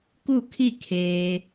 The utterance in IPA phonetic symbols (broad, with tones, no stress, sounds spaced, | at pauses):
k u˥˨ kʰ i˥˨ kʰ eː˧